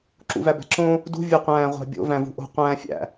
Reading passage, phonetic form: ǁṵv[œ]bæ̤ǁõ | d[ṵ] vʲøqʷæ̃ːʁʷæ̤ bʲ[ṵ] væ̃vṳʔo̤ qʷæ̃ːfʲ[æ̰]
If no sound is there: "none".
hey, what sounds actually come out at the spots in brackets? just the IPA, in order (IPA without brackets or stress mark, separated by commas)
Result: æ, ṳ, o̰, æ̰